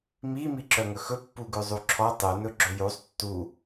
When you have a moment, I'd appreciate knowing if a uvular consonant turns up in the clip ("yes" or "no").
no